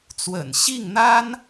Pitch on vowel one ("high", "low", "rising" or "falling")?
low